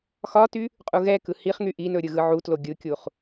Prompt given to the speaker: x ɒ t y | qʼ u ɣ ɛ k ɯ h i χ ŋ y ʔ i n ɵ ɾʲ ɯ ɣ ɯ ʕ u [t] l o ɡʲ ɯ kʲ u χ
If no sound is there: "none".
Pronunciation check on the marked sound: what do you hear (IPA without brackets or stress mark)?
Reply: t